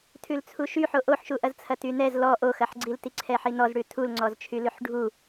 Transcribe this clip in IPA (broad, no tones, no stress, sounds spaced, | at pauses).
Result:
tʰ ʉ l t͡sʰ u ʃ y ħ o ʔ o ħ ʃ u ʔ ɐ z t͡sʰ ɐ t y n ɛ z l ɔ ʔ o x ɐ ħ ɡ͡ǀ i l t i ǀʰ ɛ ħ i n ɔ z ɽ ʉ tʰ u l ŋ͡ǀ ɔ z t͡ʃʰ y l ʉ ħ ɖʱ u